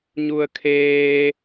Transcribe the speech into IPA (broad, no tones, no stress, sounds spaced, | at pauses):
ɲ u ə̯ kʰ eː